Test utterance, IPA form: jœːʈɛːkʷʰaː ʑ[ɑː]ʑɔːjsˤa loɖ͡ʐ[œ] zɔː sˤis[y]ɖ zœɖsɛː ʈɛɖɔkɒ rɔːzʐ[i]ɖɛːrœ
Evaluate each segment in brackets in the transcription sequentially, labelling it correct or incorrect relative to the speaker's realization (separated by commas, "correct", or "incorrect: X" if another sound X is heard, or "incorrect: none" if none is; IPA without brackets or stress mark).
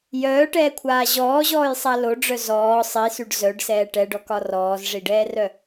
incorrect: ɔː, correct, correct, correct